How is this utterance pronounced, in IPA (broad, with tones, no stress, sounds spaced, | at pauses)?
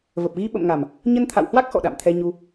v ə˨˩ p̚ ɣ i˧ ɓ ə̰˧˨ m ŋ a˨˩ m | ɲ ə˧ n t̪ʰ a̰˧˨ w h w a˦˥ k̚ x ɔ̰˧˨ ɗ a̰˧˨ m t̪ʰ ɛ˧ ɲ u˧